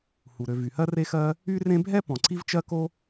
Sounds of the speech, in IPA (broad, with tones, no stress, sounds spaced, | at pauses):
h u˩ ɾ ø˨ v y˩ h ɜ˥ r e˦ x ɜ˦ | y˦ r ẽ˦ bʱ ɛ˥ p ɔ̃˩ ǀ i˥ v t͡ʃ ɜ˥ k o˥